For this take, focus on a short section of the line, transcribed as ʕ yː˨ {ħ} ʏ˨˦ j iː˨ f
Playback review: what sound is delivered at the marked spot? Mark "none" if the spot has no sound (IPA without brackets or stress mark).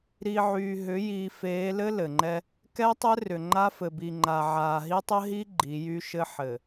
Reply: ɦ